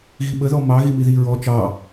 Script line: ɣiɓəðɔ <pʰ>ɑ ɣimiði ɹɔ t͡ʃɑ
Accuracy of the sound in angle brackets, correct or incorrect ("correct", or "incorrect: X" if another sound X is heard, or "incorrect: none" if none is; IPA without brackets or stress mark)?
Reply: incorrect: m